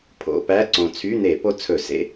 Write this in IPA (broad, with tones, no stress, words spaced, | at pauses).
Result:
pʰo̰˧˥˧pæ˧˥˧ ǀõ˨˩t͡sʰy˧˥˧n̪e˧˩˧ po˧ t͡sʰɵ˧˩˧sḛ˧˥˧